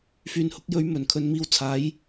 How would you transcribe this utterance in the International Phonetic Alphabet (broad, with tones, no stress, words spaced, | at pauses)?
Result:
fyː˨nhʊ˨˥k̚jɵ˨˥ɥ mɵ˨˩nkʰɵ˨˧n miː˧wt͡sʰaː˨˥j